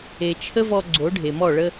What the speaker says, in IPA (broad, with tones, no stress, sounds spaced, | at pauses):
e˨ t͡ʃʰ ə˦ v ɔ˧ ɡ͡ǀ o˨˦ ɖʱ e˨ m ɔ˦˨ ɭ ə˧